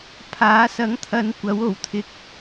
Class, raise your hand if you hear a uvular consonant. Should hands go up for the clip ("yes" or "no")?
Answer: no